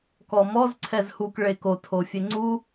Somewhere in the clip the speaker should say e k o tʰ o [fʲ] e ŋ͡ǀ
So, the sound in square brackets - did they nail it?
yes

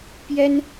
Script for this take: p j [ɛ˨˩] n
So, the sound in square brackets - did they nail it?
no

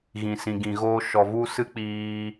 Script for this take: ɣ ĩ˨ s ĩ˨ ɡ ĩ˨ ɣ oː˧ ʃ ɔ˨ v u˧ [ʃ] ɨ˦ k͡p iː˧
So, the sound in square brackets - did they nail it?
no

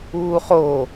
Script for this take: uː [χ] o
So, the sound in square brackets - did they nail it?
yes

